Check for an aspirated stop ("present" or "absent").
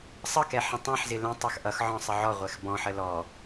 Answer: absent